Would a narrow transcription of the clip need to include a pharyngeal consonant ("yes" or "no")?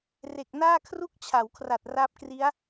no